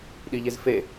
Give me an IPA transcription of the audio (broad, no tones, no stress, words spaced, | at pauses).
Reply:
ɗiʎezfe